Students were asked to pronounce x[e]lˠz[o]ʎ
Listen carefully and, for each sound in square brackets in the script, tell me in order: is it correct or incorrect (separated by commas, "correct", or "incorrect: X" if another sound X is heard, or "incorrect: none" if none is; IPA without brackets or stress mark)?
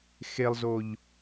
correct, correct